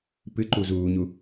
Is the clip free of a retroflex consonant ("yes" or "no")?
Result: yes